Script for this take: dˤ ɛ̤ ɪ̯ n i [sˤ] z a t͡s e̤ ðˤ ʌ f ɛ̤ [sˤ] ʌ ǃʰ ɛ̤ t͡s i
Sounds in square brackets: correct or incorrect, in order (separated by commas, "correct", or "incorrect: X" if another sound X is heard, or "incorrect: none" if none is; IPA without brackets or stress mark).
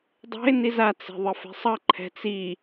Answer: incorrect: none, correct